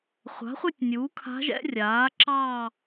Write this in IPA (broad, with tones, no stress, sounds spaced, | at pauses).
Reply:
χʷ a̤˩˥ χʷ ɛ˥˧ tʲ nʲ uː˩˥ kʰ a̤˧˥ ʒ ɛ̰˧˥ rʲ aː˩˥ ǁ ɑː˥˧